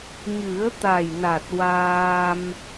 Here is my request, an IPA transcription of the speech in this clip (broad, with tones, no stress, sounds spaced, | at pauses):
ɲ ɨ˨˩˦ ə̯ t̪ a˨˩ j n a˨˩ t̚ w aː˧ m